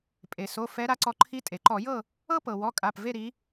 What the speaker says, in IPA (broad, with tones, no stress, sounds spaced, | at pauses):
pʼ e˩ s o˩˧˩ f ɛ˨˦ ɾ a˨˦ ǀ ɔ˨˦ ǃʰ i˨˦ tʼ e˩ ǃ ɔ˧˩˧ j ɤ˦˨ | ɤ˦ p ɤ˩ w ɔ˩˧˩ kʼ a˩˧˩ p v e˦˨ ɾ i˨˦